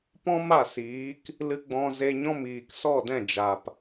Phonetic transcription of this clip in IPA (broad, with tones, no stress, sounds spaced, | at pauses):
p ɔ̃˦ m a˦˨ s iː˨˦ k | l ɨ˧ ɡ͡b ɔ̃˧ z e˧ ɲ ɔ̃˦ m iː˨ k s ɔ˦˨ d ɛ̃˦˨ d͡ʒ a˨ p